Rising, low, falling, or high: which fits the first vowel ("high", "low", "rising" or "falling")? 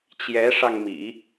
rising